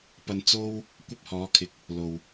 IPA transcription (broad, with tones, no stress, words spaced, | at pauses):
pɐ˨n t͡so˧w | kʷɐ˥p̚hɔː˨˥kʰɪ˨k̚ | lo˨w